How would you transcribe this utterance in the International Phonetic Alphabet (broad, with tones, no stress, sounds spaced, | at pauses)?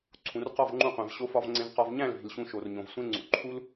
ǀʰ ũ˨ r q ɒ˦˨ v ŋ͡ǃ ũ˧ qʷ æ̃˨ v ɕ o˧ f ɒ˧ v ŋ͡ǀ ẽ˧ v q ɒ˧ v ɲ æ̃˦˨ l v i̤˨ l ɕ ũ˧ ʃ o˨ r ɲ õ˨ v sʷ ẽ˦ ŋ͡ǀ ṵ˨ ǃʰ u˦ l